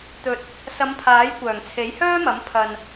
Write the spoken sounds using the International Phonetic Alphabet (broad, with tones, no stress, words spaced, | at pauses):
t̪ɵ˨t̚ | sɐ˨˧mpʰaː˨˥j kʷœː˨˩ŋt͡sʰe˨˥jhœː˥mɐ˨˥m pʰɐ˨n